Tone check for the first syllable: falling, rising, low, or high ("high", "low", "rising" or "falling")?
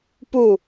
falling